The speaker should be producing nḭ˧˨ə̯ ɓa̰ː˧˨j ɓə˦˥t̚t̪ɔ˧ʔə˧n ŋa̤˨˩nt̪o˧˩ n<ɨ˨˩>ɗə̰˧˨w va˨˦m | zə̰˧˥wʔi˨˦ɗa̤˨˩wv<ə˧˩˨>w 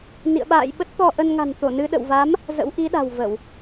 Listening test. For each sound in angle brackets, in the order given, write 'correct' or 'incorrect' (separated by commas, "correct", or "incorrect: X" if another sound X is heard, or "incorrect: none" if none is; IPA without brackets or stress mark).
incorrect: ɨ˧, correct